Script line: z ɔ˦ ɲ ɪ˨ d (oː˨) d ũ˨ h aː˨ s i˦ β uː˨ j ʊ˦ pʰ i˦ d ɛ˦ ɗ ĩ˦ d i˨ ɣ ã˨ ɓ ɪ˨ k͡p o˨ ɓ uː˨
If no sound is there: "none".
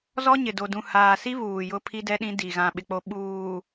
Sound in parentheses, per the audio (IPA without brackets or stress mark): o˨